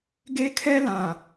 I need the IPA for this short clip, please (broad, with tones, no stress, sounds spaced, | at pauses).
ɡ e˦ kʰ ɛ˦ l ã˨